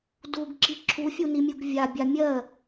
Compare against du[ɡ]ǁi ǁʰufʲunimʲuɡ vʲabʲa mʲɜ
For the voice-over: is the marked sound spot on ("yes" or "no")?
yes